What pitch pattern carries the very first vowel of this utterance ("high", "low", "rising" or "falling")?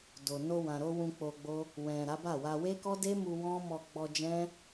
low